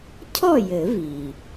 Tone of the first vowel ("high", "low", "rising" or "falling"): falling